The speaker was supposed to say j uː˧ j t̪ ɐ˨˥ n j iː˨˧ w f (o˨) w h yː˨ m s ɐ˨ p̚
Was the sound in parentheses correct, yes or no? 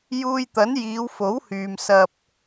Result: no